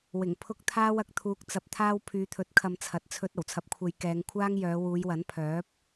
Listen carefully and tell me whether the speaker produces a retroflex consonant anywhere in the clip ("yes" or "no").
no